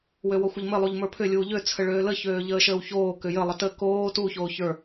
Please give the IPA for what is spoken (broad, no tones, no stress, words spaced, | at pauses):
wøwɔxʷəʎmɘ lˠuʎmə˞pʰʏ lʲuːʎø t͡sʰəɭøːlə çøːʎəːʃəːwçoː kʏjə lˠətə koː tu çoːçə˞